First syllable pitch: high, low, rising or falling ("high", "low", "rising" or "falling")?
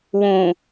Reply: low